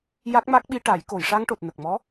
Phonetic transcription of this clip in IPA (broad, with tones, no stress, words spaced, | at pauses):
ja˦˥k̚ma˦˥k̚ɓi˧ʈa˨˩˦j ko˨˩˨jʂa˧ŋʈo˨˩t̚ nə˨˩k̚mɔ˧˥